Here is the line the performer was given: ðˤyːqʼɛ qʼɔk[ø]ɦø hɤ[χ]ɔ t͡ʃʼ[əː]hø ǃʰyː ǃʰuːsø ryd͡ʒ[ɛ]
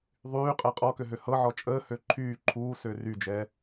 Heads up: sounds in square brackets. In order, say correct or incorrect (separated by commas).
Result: correct, incorrect, correct, correct